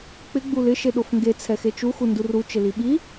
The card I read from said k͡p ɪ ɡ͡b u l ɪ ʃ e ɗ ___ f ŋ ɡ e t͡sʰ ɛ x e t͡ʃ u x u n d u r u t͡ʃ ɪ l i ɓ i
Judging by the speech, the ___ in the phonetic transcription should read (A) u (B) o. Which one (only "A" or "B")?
B